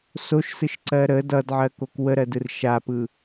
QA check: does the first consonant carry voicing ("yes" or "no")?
no